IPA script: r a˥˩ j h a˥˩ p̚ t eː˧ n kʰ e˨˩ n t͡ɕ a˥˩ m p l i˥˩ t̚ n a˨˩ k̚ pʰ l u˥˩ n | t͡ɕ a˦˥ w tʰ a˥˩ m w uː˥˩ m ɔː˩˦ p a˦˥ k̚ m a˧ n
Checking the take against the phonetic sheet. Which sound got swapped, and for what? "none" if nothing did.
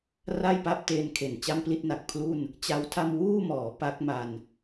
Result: h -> p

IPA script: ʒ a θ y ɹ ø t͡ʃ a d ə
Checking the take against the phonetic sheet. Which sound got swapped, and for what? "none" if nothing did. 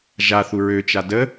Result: y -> u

